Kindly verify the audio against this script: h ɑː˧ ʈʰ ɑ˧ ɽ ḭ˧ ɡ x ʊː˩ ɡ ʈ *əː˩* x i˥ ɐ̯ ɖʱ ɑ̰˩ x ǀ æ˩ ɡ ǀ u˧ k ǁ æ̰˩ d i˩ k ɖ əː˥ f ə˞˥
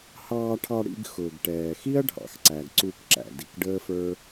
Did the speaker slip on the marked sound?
yes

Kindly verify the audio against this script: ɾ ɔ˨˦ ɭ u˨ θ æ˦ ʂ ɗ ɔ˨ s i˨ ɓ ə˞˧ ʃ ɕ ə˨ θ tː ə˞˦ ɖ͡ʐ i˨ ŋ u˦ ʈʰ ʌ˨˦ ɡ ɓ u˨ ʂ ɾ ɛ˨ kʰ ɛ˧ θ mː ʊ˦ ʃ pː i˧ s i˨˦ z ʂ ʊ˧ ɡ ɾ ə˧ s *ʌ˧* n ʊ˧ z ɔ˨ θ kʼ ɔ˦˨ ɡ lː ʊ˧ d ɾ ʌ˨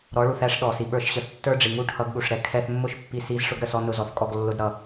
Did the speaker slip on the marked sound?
yes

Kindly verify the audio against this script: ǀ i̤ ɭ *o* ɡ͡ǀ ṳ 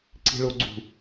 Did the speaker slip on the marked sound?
no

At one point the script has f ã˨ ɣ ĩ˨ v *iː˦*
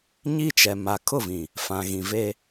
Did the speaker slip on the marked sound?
yes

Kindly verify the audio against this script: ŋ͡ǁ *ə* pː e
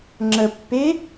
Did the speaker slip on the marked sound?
no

